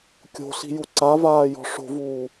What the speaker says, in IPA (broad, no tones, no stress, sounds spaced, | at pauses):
kʲ o̤ ɬ i̤ j u ǀ a v aː j ɔ̤ ʂ o̤ v uː